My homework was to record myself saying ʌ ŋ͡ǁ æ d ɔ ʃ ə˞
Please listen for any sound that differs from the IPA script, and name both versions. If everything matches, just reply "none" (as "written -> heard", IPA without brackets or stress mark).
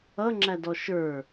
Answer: none